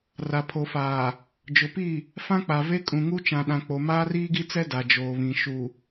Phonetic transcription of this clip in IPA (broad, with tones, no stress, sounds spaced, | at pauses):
r a˨ pʰ o˨ f aː˨ | d͡ʒ ʊ˨ p i˦˨ | f ã˦ k͡p a˨ v e˦ kʼ ũ˨ ŋ u˦ t͡ʃ ã˨ ɗ ã˨ k͡p o˨ m aː˦ r iː˦ ɡ i˦ t͡s ɛ˦ d a˨ d͡ʒ oː˨ β ĩ˨ ʃ u˨